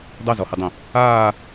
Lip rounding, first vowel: unrounded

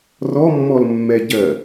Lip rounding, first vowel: rounded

